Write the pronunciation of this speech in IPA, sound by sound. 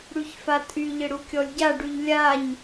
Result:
ɽ y ç f a tʼ y ʎ ɪ ɽ u kʲ ɔ lʲ ɟ a ɖ y ʎ lʲ a ɲ

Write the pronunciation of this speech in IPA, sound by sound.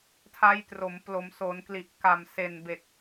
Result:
tʰ a˦˥ j t r o˩˦ m p l o˩˦ m s o˩˦ n k l i˨˩ ʔ k a˨˩ m s e˨˩ n b e˨˩ k̚

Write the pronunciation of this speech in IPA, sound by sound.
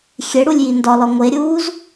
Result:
xʲ e ɽ u lʲ j i n d ɒ l ɒ ŋʷ e ɾʲ uː z

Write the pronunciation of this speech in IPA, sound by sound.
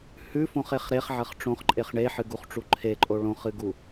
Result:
h ʉ f õ χ e χ ɾ e χ ʕ ɐ χ ʈ͡ʂ õ χ ǃʼ e χ ɳ e ħ ɨ ɡ u χ ʈ͡ʂ u ǃʰ e ǃʼ o ɭ õ χ ɨ ɡ u

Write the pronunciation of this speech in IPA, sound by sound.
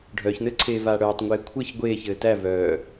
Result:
ɖʱ œː ç n ɘː ǀʰ eː v aː ɽ œː tˤ ŋʷ eː kʷʰ ɘ ç ɡʷ eː ç ɘː t æ v œː

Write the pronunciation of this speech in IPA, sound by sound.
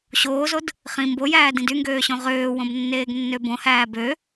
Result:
ɕ oː z o d | χ ĩ m b o j æː d ĩ d y ŋ ɡ øː ɕ õ ʁ øː w õ b nː eː ɡ nː ø b õ h æː b ø

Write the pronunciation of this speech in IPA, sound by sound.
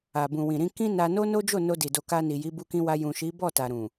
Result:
a˨ b ũ˨ w ĩ˨ ɾ ĩ˧ k ĩ˦ n a˧ n o˦ n o˦ d͡ʒ o˦˨ n o˧ d i˨ d o˨ k a˧ n i˨ j i˨˦ b u˧ k ĩ˧ w a˧ j ũ˨ ʃ i˨˦ b ɔ˦˨ t a˨ ɾ ũ˨

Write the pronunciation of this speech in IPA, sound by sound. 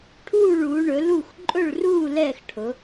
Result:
ʈʰ uː˥˨ ɭ uː˨˦ ɳ ɵ˨˦ l u˥˨ x ǃʼ ɵ˥˨ ɭ r uː˥˨ l ɛː˥˨ x ʈʰ ʊ˨˦

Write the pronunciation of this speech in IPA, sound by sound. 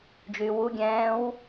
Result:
d͡ʒ yː w u ɡʲ ɛ̃ː w

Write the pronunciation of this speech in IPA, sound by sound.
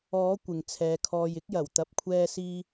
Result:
ɔː˨˥ kʷ ɪ˨ ŋ t͡sʰ ɛː˨˧ kʰ ɔː˧ j ɪ˥ k̚ j ɐ˨˩ w t̪ ɐ˨ p̚ kʷʰ ɛː˧ s iː˧

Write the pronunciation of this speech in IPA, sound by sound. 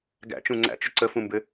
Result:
ɡ æ̰ t͡ʃ ũ ŋ͡ǀ æ̰ t͡ʃ ʏ ǀ ə f ũ m b ɘ

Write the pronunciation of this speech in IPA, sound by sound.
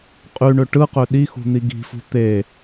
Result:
qʼ y ɳ ø ʈ ɯ q ø ɗ i x ṳ n̪ i ɡ i̤ f ṳ t̪ e

